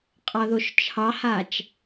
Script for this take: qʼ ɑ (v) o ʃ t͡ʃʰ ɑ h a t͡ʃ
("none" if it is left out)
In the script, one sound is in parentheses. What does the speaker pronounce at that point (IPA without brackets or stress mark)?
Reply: ð